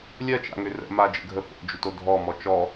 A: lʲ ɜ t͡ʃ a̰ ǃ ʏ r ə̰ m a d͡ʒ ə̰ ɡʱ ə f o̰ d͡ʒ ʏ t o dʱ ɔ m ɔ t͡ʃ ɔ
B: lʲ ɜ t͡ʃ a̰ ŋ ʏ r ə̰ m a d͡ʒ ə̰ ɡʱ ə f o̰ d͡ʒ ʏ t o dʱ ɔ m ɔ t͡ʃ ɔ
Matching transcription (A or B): B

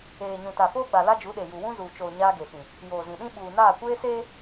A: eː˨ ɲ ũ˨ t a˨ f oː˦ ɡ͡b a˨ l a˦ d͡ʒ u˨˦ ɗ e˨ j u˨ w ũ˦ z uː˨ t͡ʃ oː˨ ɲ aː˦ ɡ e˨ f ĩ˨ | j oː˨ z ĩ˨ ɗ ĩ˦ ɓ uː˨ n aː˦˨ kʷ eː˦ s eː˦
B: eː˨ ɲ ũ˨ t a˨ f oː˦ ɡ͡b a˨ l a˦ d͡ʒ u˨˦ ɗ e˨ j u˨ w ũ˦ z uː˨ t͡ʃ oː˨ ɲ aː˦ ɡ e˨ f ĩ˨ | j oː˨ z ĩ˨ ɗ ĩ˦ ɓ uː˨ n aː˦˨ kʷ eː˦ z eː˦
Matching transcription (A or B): A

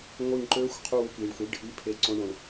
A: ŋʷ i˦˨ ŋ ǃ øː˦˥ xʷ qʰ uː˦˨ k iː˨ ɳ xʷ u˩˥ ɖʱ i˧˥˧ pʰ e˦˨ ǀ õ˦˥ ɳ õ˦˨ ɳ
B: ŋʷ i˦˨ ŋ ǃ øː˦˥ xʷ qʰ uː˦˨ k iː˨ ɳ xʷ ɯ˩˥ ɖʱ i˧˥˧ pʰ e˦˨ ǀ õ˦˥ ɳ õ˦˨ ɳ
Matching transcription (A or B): B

